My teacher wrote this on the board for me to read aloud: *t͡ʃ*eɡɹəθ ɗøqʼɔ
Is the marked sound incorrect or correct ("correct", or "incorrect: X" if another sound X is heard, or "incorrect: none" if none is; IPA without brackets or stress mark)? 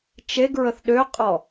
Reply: correct